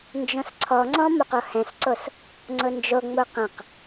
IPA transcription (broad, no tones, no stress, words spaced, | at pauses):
nd͡ʒõsǀʰɔŋ͡ǀɔ̃ moqohɛ̃sǀos | ŋ͡ǀʊnd͡ʒoŋ͡mo qə̃q